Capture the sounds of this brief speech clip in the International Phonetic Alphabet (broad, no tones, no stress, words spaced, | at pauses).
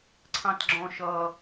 ǀʰɑ̃tɡ͡ǁɔ̃ʃʌ